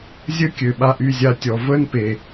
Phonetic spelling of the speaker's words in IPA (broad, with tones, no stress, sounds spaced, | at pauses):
zʲ ə˦ kʲ ø˨ ɓ a˧ ʔ y˦˨ zʲ a˧ tʲ ɔ˨ v ə˦ n p e˨